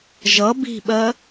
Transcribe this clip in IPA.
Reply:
ʒ ʌ b i̤ ɓ ɜ

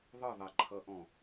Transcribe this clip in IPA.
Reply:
ðˤ ə ðˤ e ǃʰ ʌ ʔ ɔ̃

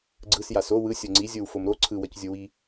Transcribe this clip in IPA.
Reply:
ɡ͡ǀ ɯ s j a s o w ɯ sʲ o ŋ͡ǀ i zʲ o w f o m ɾ o ǀʰ ɯ w ʌ c zʲ o w i

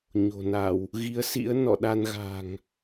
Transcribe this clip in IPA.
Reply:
ɲ o̤˨˩ n a˧˩˨ w | ɣ i˨˦ ə̯ s ḭ˧˥ ə̯ n ɔ̰˧˨ ɗ a˧ n ɣ a̤˨˩ ŋ

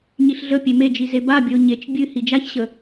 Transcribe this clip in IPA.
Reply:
ɲ i ɬ ɮ ə pʲ e m e d͡ʒ i z e b a bʲ ə o̯ ɲ e t͡ʃ bʲ ɨ h i d͡ʒ a ç ɕ ə

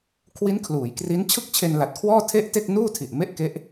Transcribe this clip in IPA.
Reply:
kʰ w i˦˥ n kʰ l uː˩˦ j k r i˦˥ n t͡ɕʰ ɯ˥˩ k̚ t͡ɕʰ e˧ n l a˨˩ t̚ kʰ w ɔː˥˩ tʰ e˥˩ ʔ t e˥˩ k̚ n uː˥˩ tʰ i˨˩ ʔ m e˥˩ ʔ k e˦˥ ʔ

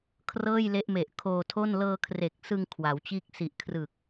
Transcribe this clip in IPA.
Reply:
kʰ r ɤː˥˩ j l e˦˥ ʔ m e˨˩ ʔ kʰ oː˧ tʰ o˥˩ n l ɤː˧ kʰ r e˨˩ k̚ s ɯ˧ ŋ kʰ w a˩˦ w t͡ɕ iː˥˩ k̚ s i˨˩ ʔ kʰ r ɯ˨˩ k̚

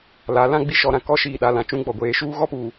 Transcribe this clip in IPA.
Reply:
l a˨˦ l ã˦ ɡ͡b i˦ ʃ ɔ˨ ɾ ã˨ k ɔ˦ ʃ iː˨ ɗ a˨ l ã˨ t͡ʃ ũ˦ ɡ͡b ɔ˨ ɡʷ eː˨˦ ʃ uː˦ ɣ ɔ˦ p uː˨

